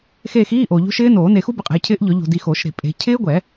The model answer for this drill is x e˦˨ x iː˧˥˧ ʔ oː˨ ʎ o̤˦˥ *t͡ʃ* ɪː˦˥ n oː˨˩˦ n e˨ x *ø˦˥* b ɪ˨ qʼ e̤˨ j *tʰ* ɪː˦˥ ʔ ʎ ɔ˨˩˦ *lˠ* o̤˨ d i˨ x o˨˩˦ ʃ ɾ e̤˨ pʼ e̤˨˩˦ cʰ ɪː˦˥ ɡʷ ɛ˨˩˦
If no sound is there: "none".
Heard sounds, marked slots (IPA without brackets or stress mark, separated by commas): ʃ, u˦˥, cʰ, ʎ